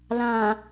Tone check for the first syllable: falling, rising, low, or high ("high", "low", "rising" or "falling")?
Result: low